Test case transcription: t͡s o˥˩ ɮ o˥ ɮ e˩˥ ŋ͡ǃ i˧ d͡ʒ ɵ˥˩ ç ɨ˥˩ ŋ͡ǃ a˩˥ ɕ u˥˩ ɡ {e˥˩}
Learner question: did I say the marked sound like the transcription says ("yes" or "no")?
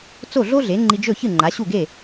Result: yes